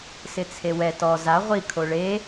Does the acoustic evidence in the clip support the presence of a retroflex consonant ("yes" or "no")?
yes